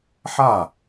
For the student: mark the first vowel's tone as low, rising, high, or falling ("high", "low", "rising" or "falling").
falling